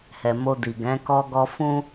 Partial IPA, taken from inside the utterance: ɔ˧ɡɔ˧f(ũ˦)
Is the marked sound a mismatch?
no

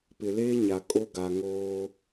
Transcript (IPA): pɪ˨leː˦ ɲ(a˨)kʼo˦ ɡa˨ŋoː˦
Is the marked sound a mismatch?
no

